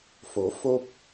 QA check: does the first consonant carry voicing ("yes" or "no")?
no